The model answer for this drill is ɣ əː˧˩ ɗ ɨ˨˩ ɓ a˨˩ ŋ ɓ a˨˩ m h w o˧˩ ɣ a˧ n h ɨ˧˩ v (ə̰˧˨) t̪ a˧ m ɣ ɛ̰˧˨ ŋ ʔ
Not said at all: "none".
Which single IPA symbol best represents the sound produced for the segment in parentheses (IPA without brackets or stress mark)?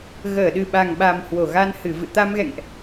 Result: ɨ̰˧˨